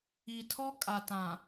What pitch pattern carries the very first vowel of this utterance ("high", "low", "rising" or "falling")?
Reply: low